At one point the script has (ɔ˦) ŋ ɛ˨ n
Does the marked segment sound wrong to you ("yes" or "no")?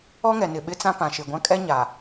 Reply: no